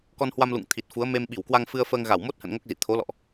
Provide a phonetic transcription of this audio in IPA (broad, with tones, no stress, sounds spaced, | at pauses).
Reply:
k ɔ˧ n h w a˧ m l ṵ˧˨ ŋ t̪ʰ i˨˩ t̚ f u˨˦ ə̯ m e˧ m ɓ i˧˩ w k w a˧ ŋ f ɨ˧ ə̯ f əː˧ ŋ ɣ a˧˩ w m o˦˥ t̚ h ə̰˧˨ n ŋ o˦˥ k̚ z ḭ˧˨ t̪ʰ o˨˦ l ɔ̰˧˨ ʔ